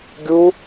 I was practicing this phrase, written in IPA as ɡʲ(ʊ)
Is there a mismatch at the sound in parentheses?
yes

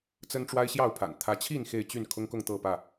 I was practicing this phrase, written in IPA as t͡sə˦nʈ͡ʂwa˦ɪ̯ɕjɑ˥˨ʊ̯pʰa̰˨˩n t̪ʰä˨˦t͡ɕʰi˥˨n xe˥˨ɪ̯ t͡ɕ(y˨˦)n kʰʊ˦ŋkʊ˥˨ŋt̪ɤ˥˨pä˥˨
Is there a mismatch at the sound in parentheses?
yes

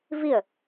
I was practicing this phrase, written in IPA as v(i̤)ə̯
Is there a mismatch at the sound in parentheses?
yes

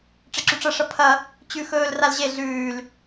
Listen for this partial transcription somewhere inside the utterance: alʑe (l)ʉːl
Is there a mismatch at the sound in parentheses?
yes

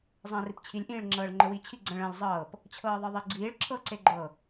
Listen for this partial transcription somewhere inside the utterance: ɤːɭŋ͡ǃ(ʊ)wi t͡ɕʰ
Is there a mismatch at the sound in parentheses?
yes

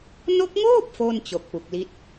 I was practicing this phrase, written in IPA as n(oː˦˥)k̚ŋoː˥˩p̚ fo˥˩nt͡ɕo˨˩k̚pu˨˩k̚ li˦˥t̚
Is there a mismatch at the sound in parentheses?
yes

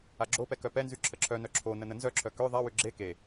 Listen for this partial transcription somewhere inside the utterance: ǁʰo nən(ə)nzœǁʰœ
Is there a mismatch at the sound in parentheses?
no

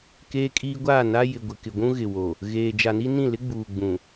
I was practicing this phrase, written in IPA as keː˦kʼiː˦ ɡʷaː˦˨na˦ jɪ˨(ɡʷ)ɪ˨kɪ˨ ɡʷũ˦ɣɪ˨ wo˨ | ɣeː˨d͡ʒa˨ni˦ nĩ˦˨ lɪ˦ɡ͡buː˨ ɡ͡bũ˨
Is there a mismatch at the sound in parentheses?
no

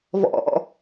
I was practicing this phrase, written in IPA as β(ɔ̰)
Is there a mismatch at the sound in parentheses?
no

